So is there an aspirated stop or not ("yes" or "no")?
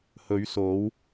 no